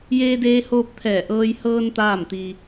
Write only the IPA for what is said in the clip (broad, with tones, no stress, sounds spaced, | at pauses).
j eː˧ d eː˧ h oː˧ p̚ t̪ʰ ɛː˧˩ ʔ ɤː˧ j h ɤː˧ n t̪ aː˥˨ m t̪ i˧